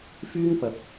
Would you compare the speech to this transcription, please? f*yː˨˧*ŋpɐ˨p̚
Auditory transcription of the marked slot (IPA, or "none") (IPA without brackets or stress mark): yː˥